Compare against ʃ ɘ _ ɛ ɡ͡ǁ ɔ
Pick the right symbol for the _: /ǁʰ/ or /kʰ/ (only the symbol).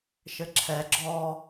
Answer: ǁʰ